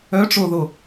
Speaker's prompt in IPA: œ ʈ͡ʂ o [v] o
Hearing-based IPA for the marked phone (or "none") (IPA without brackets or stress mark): ð